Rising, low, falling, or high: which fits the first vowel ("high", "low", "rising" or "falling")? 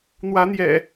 rising